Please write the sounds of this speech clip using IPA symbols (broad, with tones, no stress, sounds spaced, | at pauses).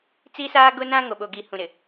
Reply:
t͡s i˦ s aː˦ ɡ ʊ˦ n ã˦ ŋ o˨ ɓ o˨ ɡ i˨ h ũ˨ ɾ ɪ˨